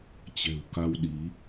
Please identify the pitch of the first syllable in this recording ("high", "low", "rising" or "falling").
low